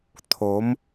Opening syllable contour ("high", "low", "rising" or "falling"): rising